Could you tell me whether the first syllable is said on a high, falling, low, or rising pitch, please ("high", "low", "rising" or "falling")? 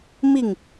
falling